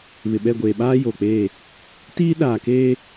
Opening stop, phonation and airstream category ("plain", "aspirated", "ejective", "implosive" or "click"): implosive